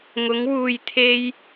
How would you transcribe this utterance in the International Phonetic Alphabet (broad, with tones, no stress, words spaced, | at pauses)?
ŋʊ˨˧ŋ wuː˨jt̪ʰe˧j